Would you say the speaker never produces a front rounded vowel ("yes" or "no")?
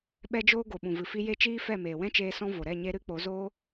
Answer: yes